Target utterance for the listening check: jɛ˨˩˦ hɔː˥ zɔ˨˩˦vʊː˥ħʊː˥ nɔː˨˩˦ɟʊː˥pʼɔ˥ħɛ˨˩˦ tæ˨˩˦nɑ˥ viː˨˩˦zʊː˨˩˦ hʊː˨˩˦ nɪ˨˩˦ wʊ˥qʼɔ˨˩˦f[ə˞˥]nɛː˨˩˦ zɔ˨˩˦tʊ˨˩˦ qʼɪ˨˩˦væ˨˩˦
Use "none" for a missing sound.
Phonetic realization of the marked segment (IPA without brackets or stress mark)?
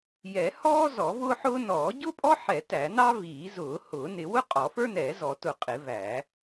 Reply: ə˞˥